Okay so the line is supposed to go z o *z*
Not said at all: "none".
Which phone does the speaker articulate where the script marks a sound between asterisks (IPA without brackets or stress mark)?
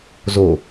none